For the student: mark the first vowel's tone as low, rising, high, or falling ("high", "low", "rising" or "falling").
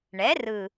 rising